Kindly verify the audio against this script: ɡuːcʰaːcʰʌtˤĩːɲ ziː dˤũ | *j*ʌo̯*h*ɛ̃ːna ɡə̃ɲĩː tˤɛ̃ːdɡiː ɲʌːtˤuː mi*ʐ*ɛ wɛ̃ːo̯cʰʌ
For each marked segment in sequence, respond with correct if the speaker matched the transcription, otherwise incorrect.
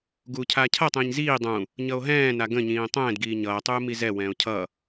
incorrect: ɲ, incorrect: ɦ, incorrect: z

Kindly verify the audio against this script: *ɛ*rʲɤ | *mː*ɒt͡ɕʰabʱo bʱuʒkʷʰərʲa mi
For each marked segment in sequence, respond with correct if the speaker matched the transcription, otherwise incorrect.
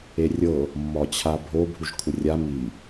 incorrect: e, correct

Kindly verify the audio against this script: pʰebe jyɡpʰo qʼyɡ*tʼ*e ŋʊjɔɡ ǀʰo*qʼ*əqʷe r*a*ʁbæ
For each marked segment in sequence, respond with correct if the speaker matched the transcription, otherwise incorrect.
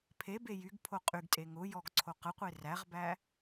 correct, incorrect: q, incorrect: æ

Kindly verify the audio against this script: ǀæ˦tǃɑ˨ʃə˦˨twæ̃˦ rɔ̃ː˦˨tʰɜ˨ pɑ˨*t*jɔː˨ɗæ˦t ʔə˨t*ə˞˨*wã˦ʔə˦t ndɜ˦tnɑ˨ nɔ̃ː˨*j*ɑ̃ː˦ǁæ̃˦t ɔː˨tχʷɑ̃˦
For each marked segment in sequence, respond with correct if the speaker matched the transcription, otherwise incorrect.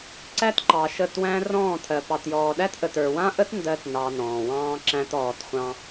correct, correct, incorrect: w

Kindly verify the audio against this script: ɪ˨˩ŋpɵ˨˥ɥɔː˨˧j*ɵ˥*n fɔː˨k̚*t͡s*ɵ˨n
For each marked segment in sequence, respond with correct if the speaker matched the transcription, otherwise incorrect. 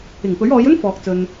correct, correct

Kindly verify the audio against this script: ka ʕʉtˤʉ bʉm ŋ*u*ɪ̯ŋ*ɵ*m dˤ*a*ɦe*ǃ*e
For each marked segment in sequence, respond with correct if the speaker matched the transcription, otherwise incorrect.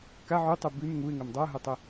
correct, correct, correct, incorrect: tˤ

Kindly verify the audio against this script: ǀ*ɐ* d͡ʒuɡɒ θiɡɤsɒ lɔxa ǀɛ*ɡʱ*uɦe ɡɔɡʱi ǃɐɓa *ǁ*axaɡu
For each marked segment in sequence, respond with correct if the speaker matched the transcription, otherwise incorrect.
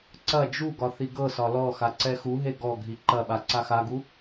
correct, incorrect: x, incorrect: ǀ

